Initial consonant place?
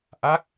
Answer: glottal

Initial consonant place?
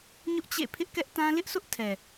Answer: palatal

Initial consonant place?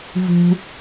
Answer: labial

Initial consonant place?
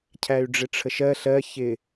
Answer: palatal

